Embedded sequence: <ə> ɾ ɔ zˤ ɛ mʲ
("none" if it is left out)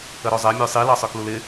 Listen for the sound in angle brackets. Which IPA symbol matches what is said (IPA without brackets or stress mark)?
ə